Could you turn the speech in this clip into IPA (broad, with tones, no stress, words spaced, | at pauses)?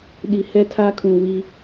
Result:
ɗi˨ hɛ˦tʰa˦kʰũ˨ wi˦